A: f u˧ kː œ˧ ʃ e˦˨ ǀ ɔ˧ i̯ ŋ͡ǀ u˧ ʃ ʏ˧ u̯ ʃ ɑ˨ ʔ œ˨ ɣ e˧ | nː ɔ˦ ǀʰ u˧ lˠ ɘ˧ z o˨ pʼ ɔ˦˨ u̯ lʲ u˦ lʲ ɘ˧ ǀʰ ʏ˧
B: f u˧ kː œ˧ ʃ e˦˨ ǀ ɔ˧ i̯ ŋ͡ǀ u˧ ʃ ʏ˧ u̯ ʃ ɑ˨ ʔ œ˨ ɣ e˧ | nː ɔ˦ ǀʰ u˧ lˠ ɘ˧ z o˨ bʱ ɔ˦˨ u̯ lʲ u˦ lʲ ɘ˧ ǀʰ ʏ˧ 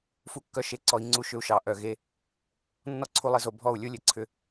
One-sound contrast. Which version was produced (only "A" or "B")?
B